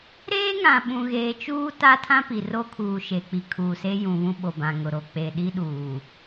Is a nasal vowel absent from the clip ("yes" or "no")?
no